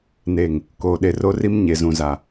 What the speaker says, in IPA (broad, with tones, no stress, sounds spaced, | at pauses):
n e˨ ŋ | k oː˨ ɗ e˨ r o˦ r i˦ m ɲ e˨ z ũ˨ z a˨